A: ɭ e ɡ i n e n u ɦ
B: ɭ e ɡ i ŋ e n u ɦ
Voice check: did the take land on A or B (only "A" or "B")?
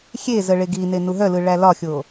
A